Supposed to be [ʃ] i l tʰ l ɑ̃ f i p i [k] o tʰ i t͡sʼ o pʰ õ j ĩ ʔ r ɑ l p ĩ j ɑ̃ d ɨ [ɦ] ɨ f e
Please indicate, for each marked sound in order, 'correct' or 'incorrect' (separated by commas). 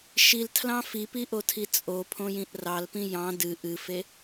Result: correct, incorrect, incorrect